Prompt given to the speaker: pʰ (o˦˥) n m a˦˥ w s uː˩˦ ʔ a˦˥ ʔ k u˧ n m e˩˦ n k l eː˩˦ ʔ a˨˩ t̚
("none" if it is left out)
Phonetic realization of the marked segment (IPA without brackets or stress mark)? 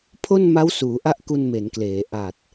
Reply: o˥˩